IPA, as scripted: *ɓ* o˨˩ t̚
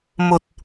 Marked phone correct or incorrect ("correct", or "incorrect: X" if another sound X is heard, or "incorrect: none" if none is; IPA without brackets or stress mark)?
incorrect: m